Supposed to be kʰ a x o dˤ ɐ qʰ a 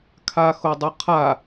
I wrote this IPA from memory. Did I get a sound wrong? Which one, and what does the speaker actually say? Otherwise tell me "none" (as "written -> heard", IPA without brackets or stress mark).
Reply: none